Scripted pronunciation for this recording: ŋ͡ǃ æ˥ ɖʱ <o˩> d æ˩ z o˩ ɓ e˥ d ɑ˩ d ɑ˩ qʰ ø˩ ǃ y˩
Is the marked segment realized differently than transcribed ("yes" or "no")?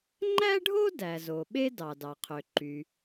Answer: yes